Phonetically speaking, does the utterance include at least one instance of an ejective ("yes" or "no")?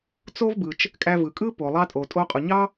yes